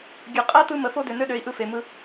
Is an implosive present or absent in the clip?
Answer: present